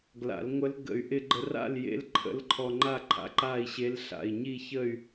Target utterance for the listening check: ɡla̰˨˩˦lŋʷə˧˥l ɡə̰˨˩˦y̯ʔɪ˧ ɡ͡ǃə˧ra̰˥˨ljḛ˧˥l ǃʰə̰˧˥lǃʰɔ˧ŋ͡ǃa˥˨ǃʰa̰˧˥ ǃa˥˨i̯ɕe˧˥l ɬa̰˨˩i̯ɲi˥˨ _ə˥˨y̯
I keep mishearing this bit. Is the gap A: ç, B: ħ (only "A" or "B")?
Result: A